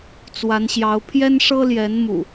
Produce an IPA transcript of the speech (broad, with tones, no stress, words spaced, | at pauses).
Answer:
t͡swa˨˦nɕjɑ˨˦ʊ̯ pʰjɛ˦nʂɤ˦ljɛ˨˦n mṵ˨˩